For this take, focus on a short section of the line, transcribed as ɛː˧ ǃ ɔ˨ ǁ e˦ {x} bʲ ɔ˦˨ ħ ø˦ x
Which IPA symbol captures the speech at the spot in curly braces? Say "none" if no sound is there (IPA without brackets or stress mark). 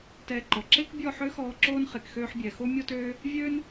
k